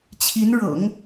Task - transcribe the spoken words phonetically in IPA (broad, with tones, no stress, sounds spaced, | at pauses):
t͡ɕʰ i˧˥ n ɻ ɤ̰˨˩˦ ŋ